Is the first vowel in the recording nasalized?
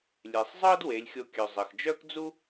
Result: no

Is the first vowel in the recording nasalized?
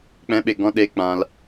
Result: yes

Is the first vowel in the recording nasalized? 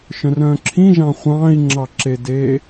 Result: yes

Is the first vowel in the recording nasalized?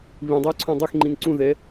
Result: yes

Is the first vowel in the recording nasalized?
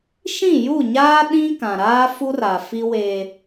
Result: yes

